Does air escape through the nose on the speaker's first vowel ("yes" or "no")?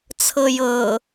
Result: no